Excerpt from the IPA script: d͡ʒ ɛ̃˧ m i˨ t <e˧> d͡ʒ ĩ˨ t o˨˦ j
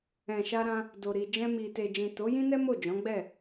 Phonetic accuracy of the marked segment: incorrect: e˨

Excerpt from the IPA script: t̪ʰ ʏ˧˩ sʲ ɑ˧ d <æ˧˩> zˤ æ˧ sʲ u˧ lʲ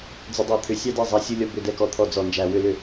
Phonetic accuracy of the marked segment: incorrect: ɛ˧˩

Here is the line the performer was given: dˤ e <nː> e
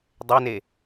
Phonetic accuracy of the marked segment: incorrect: n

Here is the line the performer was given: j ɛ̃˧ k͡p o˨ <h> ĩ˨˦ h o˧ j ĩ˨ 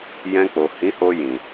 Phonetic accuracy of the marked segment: correct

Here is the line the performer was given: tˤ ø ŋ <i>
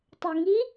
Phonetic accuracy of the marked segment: correct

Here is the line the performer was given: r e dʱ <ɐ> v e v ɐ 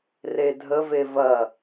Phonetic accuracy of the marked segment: incorrect: ə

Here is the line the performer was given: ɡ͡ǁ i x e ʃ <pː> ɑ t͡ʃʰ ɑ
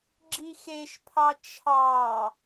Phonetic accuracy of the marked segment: incorrect: pʰ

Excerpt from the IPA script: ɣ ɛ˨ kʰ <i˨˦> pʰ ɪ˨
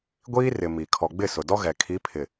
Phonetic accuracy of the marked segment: correct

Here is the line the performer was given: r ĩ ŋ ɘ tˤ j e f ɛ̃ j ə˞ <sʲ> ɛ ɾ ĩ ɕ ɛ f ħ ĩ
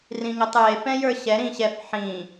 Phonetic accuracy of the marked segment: incorrect: ɕ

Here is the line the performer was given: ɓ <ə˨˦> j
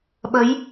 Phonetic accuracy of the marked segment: correct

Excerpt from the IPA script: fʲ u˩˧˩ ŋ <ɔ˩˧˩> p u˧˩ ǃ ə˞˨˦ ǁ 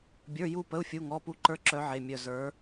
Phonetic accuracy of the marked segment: correct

